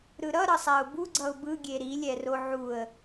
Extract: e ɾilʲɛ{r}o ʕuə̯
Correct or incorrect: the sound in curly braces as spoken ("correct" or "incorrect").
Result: correct